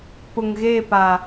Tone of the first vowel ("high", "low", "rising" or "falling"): low